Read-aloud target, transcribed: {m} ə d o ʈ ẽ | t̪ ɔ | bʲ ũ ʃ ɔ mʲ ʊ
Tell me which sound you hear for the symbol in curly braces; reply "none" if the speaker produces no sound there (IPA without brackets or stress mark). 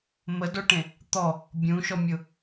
m